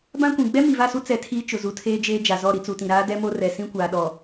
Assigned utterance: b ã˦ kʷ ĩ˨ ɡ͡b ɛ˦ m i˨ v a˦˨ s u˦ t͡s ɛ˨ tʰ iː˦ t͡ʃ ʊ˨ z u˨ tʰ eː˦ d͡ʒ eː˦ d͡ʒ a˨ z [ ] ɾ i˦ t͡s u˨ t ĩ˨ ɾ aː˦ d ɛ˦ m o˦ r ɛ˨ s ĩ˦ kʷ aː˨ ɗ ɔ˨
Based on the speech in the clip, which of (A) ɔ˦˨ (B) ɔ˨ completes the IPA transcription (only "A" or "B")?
A